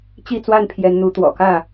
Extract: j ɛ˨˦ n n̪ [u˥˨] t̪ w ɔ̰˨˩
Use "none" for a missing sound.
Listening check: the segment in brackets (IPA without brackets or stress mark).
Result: u˨˦